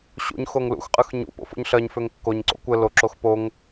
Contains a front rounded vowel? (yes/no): yes